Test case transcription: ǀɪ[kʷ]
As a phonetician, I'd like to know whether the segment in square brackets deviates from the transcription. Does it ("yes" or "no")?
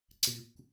no